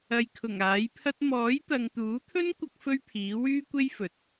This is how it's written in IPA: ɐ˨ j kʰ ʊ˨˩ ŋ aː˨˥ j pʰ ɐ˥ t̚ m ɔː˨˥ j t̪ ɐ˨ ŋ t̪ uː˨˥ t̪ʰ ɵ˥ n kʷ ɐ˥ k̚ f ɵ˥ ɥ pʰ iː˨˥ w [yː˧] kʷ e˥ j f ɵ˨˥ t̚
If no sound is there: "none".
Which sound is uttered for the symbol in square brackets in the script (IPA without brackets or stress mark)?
yː˥